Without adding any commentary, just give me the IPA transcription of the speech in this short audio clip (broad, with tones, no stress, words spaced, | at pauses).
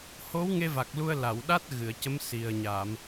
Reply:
ho˧˥wŋe˧va˨˩k̚ lu˧ə̯la˨˩˨wɗa˦˥t̚ ɣɨ˨˩˨ə̯cə˧˥m si˨˩ə̯ɲa˨˩˨m